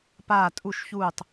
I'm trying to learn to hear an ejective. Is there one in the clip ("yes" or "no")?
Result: yes